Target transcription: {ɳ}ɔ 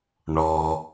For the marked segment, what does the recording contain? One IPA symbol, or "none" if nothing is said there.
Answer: ɳ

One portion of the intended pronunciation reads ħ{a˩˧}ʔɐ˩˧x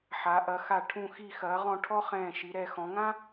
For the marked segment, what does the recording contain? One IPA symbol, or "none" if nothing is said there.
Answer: a˩˧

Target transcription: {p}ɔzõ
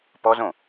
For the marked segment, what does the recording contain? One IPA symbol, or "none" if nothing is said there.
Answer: p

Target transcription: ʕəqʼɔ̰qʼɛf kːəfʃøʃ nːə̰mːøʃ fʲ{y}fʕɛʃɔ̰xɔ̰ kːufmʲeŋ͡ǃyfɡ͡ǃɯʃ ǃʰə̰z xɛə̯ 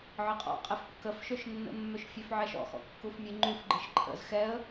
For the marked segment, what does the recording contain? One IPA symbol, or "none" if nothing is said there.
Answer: ø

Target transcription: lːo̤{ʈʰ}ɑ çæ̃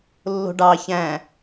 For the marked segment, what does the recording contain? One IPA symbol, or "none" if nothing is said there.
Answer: ɖ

